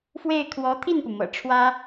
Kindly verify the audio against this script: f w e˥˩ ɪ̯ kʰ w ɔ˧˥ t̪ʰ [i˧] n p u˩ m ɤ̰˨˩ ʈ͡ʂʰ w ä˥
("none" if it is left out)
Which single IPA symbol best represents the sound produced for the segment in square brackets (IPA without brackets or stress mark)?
i˥˩